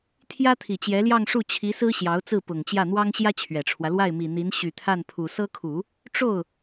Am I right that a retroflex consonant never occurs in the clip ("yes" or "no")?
no